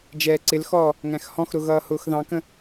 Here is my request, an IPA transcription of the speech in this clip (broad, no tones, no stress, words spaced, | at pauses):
d͡ʒɛːǀɪlxɔː | ŋæ̃xhɔ̃xɾʊ ɣʌːhʊːxðɑ̃kə̃